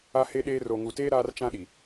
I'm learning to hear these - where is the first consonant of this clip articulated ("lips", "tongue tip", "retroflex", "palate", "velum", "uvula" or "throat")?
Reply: throat